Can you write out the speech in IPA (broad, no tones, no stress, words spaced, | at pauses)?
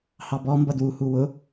hɑbɔ mbʌdwu huwʊ